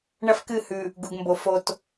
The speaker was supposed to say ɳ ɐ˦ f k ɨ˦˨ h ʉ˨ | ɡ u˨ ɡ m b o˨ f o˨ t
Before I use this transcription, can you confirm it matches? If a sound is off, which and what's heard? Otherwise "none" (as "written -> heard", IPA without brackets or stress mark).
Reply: none